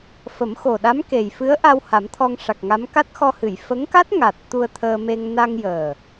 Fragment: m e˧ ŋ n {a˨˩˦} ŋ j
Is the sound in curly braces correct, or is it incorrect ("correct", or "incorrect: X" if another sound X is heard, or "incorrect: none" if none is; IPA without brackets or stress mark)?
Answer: incorrect: a˧